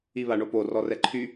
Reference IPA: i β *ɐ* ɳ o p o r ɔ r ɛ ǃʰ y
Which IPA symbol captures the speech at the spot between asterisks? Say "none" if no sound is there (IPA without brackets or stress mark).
a